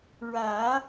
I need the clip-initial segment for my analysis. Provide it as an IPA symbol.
ɹ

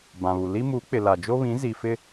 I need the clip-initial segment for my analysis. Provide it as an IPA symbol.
b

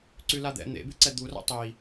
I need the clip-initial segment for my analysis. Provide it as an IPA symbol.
ǀ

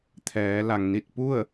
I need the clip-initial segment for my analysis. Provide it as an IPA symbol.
t̪ʰ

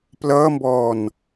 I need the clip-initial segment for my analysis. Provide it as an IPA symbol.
p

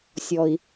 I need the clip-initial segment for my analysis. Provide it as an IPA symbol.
sʲ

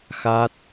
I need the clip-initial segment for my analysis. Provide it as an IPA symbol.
x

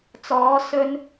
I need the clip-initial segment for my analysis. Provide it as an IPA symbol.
t͡s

